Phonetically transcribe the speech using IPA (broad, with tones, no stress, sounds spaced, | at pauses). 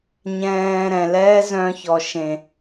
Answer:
ɲ ɛ̃ː˧ ɾ ɛ̃˨ l ɛː˦ z œ̃˧ ç ɔ˨ ʃ ẽ˨